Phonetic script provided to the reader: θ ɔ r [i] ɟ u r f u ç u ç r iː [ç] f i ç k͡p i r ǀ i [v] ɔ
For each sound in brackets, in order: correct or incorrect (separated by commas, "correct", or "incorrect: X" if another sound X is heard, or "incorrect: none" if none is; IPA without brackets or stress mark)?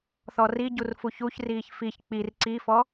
correct, correct, incorrect: f